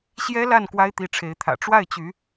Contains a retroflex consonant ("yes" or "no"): yes